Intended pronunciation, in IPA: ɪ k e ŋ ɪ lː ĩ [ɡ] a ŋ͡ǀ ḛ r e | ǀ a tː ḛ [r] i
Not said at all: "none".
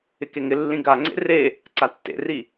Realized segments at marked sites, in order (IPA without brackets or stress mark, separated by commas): ɡ, r